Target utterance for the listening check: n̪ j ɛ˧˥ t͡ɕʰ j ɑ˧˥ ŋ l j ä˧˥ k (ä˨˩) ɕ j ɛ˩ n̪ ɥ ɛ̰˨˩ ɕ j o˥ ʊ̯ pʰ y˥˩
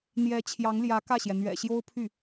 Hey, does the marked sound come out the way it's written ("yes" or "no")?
no